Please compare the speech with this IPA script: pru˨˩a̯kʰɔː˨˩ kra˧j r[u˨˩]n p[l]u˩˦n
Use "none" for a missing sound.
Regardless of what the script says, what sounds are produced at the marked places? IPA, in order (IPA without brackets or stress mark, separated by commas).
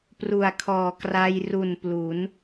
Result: u˨˩, l